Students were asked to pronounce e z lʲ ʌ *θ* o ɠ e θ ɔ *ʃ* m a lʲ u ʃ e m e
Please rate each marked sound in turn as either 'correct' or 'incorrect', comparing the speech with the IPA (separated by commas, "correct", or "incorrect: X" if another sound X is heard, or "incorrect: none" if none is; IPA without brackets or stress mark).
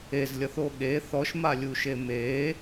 correct, correct